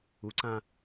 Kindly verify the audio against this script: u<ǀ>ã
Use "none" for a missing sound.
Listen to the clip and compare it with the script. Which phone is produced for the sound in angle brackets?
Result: ǀ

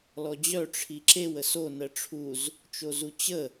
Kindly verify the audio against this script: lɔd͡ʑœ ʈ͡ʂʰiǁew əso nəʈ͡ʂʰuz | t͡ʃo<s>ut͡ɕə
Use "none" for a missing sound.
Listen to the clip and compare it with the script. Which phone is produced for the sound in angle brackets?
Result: z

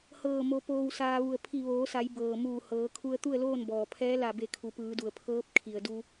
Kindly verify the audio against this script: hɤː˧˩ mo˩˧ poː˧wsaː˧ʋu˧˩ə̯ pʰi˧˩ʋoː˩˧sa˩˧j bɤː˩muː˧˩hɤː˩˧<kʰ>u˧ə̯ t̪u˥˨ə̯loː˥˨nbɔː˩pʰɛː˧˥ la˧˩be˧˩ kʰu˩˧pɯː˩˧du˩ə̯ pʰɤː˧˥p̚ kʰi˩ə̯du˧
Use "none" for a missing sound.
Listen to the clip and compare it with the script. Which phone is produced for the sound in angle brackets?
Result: kʰ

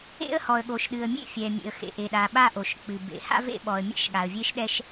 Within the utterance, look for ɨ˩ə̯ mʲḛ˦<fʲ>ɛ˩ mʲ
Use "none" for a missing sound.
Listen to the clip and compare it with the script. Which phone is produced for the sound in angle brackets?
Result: fʲ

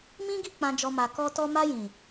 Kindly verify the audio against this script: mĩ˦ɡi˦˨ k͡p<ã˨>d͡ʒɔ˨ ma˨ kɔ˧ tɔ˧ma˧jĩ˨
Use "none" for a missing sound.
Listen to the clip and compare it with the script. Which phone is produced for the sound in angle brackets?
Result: ã˨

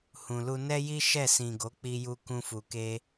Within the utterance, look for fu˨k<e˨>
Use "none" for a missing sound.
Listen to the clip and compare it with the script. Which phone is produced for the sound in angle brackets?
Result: e˧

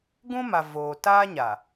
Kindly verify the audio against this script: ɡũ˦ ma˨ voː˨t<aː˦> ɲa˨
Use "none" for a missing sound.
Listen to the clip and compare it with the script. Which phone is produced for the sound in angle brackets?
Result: aː˦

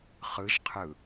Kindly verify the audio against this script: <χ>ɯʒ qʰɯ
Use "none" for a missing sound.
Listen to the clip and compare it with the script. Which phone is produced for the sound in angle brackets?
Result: χ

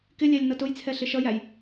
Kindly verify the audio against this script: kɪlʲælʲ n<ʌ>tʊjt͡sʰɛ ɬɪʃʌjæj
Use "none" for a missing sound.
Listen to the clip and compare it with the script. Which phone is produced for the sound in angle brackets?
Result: ʌ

